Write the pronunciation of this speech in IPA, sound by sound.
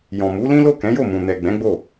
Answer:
j ɔ̃˨ m u˨˦ l ĩ˦ l o˦˨ k ɛ̃˨˦ j o˦˨ m ũ˨ n ɛ˨ ɡ͡b ɛ̃˨˦ ɡ͡b o˦˨

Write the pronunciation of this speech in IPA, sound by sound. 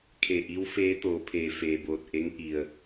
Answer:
kʰ e˧˩ ʔ i˧˥ w f eː˧˥ t̪ oː˩˧ pʰ eː˩ f eː˩ b oː˧˩ t̚ ʔ e˧˥ ŋ ʔ i˩ ə̯

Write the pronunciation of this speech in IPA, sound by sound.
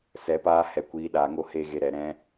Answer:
s ɛ˧ p aː˦ h ɛ˧ kʷ iː˧ ɗ aː˧ ŋ o˦ h e˦ ɣ e˧ ɾ ɛ˨ ɾ ɛ̃˧

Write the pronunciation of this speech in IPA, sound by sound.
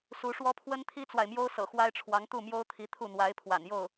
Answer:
s u˧˥ ʂ w ɔ˥ pʰ w ə˥ n t̪ʰ i˥ t͡s w a˨ ɪ̯ m j o˥ ʊ̯ s ɤ̰˨˩ x w a˥ ɪ̯ ʈ͡ʂʰ w ɑ˧˥ ŋ t̪ u˥˩ m j o˥ ʊ̯ t̪ʰ i˧˥ t̪ʰ u˥˩ n̪ w a˧˥ ɪ̯ pʰ w a̰˨˩ n j o˥˩ ʊ̯

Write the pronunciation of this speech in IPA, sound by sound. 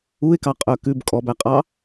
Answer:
u ɪ̯ k ɑ qʼ œ k ʉ b kʼ ɔ b æ qʼ ɑ

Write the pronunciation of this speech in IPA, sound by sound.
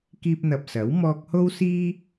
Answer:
k iː˧ p̚ n̪ ɐ˨ p̚ s ɐ˨˥ w m ɔː˧ k̚ h o˥ w s iː˥

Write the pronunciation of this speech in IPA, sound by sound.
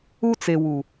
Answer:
u˦ t͡s e˨ w u˨

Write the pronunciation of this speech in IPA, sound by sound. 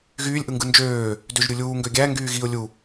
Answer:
ɣ yː lʲ ʔ ɯ ŋ ɡ ɯ n d͡ʒ øː | d ø ʒ ɾʲ u lʲ uː ŋ ɡ ø ɡʲ æ ŋ ɡ yː ɣ i ʊ̯ lʲ u

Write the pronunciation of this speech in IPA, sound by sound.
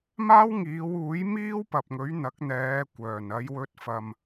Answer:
m aː˥ w ŋ iː˨˧ w uː˨˥ j m iː˥ w p ɐ˨ p̚ ŋ ɵ˨˥ ɥ n̪ ɐ˨˥ k̚ n̪ ɛː˨˧ kʷ œː˨˩ n ɐ˨˧ j w ɵ˧ t̚ f ɐ˨ m

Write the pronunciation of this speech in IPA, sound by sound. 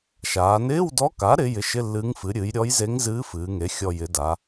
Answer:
ʃ aː˩˧ n ɪː˧˥˧ w d ɔ˧˥ k a˩˥ ɾ ɪ˧˥ j ɪ˩˥ ʃ ɪ˧˥˧ lː ɨː˧˥ ŋ f ɨ˩˥ ɾʲ ɨː˩˥ j ɾʲ ɔ˧˥ j z e˧˥ ŋ z ɨː˧˥ f ɨː˩˧ ŋ e˩˥ xʲ ɔ˨˩ j ɪ˩˧ d a˩˧

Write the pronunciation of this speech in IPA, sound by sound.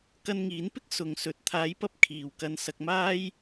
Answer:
k ɐ˧ n ŋ iː˨˥ n p ɪ˥ k̚ s ʊ˨˧ ŋ s ɵ˨˥ t̚ t̪ʰ aː˨˥ j p ɐ˧ p̚ kʰ iː˨ w k ɐ˧ n s ɐ˧ k̚ m aː˥ j

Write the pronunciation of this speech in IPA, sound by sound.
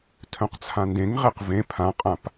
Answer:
tʰ œ̃ q t͡sʰ ã n d ẽ ŋ ʁ e q v ẽ pʰ ã qʼ ã p

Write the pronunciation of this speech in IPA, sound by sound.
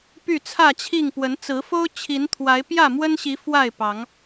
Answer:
p y˥˨ t͡sʰ ä˥˨ t͡ɕʰ i˥˨ ŋ p w ə˨˦ n t͡s ɹ̩˨˦ f o˦ ʊ̯ t͡ɕʰ i˨˦ n t̪ʰ w a˨˦ ɪ̯ p j ä˥˨ m w ə˦ n ɕ i˨˦ f w a˥˨ ɪ̯ p ɑ˨˦ ŋ

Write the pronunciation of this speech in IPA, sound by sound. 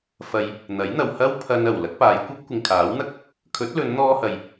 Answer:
f ɐ˧ j | n̪ ɐ˨˥ j n̪ ɐ˨ w h ɐ˥ w pʰ ɐ˧ n ɐ˨˩ w l ɐ˨˥ k̚ p aː˨˧ j kʷ ɐ˥ p̚ kʷ ɪ˨ ŋ kʰ aː˨˥ w n̪ ɐ˥ k̚ | kʰ ɵ˨˥ t̚ l ɵ˨˧ n n̪ ɔː˧ h ɐ˨ j

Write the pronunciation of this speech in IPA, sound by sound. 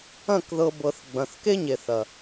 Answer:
ɐ̃˦˨ k ð ɤ˧ b ɤ˨ θ ɡ͡b ɐ̃˨ θ k e˦ ɲ e˨ θ ɐ˨

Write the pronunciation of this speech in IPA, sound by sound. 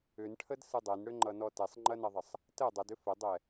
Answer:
ʏ n ʈʰ ə d s ɯ dˤ ɛ n ɽ ʏ ŋ͡ǃ ʌ n ɔ t ɛ sˤ ŋ͡ǃ ɐ n ɐ ðˤ ə sˤ | t ə dˤ ʌ d ʏ f ə dˤ ɛ

